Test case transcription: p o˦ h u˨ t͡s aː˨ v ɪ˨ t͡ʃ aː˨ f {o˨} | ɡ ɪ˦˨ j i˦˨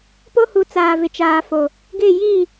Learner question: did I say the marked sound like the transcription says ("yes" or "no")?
yes